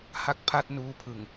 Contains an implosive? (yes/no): no